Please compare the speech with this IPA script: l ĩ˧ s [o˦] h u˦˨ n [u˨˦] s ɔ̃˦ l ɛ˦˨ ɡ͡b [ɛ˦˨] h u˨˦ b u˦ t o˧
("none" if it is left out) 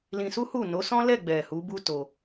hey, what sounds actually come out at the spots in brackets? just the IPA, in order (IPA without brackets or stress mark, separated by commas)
u˦, o˨˦, ɛ˨